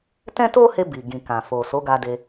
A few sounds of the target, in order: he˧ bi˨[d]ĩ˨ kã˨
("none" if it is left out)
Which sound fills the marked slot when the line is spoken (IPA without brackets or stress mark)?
ɡ